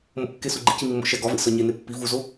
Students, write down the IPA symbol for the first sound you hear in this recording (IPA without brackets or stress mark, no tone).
m